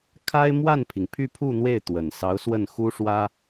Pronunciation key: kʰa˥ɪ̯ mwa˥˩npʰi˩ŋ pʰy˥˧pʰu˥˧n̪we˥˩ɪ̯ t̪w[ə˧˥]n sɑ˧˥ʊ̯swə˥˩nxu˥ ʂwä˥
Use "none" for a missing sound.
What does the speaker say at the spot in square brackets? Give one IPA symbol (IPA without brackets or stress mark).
ə˨˩